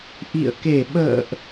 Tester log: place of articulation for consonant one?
glottal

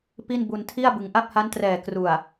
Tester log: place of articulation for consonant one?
labial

